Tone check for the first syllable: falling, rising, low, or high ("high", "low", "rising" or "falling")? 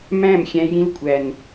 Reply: falling